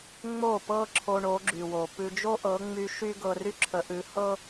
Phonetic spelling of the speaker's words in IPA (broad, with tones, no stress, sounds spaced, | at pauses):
ŋ͡m o˥˩ p ɤ˥ ǁʰ o˧ ɳ o˩˥ ɡ͡ǁ y˩ w o˩ p ʉ˧ d͡ʒ o˥ ʔ ɤ˩˥ ŋ͡m y˧ ʃ y˥ ɡ ɤ˧ r y˥ ǁʰ ə˩˥ ʔ ʉ˩˥ h ɤ˥